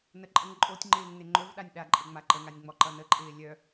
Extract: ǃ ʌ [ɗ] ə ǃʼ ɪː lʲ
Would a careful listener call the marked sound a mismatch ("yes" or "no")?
yes